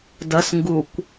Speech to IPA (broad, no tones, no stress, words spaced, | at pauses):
dɐsŋɡukʷ